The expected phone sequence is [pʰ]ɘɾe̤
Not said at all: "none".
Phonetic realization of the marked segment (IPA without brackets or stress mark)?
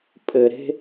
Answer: pʼ